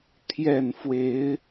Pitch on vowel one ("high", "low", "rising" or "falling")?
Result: low